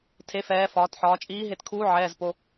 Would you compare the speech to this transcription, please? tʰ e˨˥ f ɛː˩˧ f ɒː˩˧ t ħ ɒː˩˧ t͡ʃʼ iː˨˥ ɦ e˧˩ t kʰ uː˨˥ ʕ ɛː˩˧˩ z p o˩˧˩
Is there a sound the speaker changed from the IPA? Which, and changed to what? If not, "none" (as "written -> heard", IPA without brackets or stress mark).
none